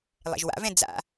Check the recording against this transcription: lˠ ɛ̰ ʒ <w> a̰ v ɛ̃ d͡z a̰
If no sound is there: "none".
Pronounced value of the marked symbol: w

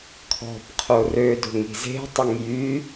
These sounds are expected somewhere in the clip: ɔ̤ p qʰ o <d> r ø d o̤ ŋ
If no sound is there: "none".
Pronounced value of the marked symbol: none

